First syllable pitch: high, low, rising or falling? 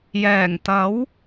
low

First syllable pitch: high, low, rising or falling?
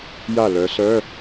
falling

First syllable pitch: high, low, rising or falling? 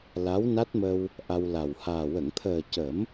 rising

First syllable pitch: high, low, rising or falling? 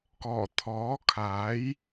low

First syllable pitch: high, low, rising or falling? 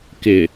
low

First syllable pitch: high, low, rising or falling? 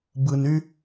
low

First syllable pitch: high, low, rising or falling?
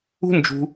high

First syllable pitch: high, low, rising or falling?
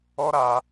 high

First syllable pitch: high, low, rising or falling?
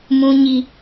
low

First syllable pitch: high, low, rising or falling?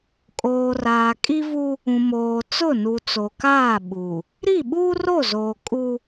low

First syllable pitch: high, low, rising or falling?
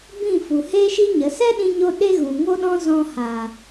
falling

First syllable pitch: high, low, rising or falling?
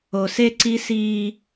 low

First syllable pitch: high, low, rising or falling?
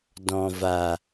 low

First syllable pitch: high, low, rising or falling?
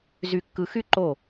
low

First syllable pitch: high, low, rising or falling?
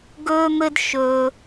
high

